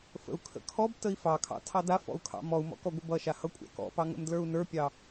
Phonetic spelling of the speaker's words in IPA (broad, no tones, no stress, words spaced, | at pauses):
fə̰u̯kʰə̰kʰɔbtəi̯ fɑkʰɑ̰ tʰɑdafɔ̰u̯ kʰɑ̰mɔu̯mɔ̰ kɔɡʷəbʌʃa hʌkʷʼɑ̰kɔ̰pɑ ŋə̰mdlə˞u̯nə˞pʲɑ